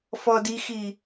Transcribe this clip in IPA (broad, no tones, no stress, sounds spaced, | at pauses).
f ɔ d i x i